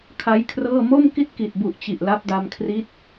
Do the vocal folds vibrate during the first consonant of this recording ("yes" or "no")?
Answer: no